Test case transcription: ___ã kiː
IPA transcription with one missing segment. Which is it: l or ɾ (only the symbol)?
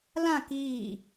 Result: l